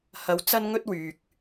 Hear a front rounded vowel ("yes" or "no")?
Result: yes